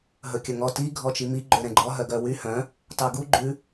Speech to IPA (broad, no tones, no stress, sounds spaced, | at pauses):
ɦ ɵ kʲ ɵ ŋ ɔ t i ɡʱ ɔ t͡ʃ i m i ɡ͡ǃ ø ɾ ɛ̃ ɡ͡ǃ ɔ ɦ œ ɡ œ w y h œ̃ | t ɑ ɡ u ɡ͡ǃ ʉ